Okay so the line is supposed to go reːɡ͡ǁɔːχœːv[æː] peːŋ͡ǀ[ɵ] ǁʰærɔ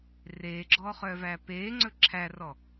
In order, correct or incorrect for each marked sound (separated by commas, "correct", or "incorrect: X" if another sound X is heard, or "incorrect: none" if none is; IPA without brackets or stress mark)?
correct, correct